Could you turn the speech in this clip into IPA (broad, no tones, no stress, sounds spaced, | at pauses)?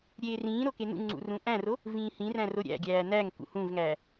ɾʲ eː r ĩː ɾ o k e n ṵ ŋ͡ǀ ṵ r ũ ʔ æ̃ r o | v ĩː h ĩ r æ̃ r o ɾʲ æ̰ ɡʲ æː n æ ŋ k ṵ h ũ v ŋ æː